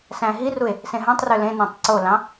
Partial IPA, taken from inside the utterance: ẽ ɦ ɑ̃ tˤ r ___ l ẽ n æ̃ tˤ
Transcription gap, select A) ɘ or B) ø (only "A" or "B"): B